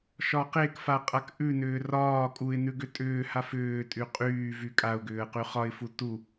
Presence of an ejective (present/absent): present